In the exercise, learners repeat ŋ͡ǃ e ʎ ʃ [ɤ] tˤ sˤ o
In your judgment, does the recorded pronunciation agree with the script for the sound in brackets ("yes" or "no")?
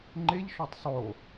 no